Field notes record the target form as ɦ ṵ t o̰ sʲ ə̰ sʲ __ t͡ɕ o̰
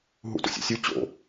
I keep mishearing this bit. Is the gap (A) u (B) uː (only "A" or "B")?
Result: A